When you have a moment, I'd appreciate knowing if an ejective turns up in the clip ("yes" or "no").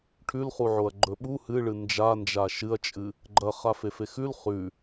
yes